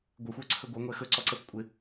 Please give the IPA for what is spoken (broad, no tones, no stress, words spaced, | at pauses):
ɡʷɛxʷə˞ǀʰɵ ɡʷə˞ŋʷɛ xɵǀɔǀəf kʷʼɪ